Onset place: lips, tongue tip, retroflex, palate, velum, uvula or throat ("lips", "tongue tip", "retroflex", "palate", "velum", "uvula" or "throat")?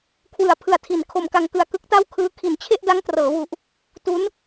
velum